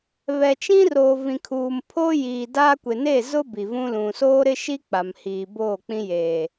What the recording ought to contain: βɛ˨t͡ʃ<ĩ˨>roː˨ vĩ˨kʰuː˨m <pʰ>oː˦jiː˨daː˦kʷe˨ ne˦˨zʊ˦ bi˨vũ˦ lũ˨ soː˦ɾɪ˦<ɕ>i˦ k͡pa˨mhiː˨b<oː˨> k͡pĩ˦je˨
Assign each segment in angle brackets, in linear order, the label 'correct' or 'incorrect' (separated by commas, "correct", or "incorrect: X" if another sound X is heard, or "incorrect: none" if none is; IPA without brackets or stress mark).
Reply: incorrect: ĩ˦, correct, incorrect: ʃ, incorrect: oː˦˨